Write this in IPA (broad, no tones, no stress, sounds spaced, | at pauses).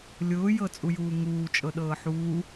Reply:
lʲ ʊː j ɤ t͡sʼ u j uː ŋ uː t͡ʃʼ ɤ ɗ ɤː ħ uː